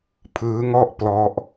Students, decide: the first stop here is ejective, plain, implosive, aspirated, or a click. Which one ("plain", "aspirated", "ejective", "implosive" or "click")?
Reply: aspirated